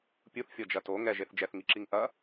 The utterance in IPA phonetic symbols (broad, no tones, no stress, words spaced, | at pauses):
pʲuθfʲɔd͡ʒɐ to ŋɛʒeθ d͡ʒɛθŋiǁiŋ ʔɐ